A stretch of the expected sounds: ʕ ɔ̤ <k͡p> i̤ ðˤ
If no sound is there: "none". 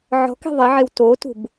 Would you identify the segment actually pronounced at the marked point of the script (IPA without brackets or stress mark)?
k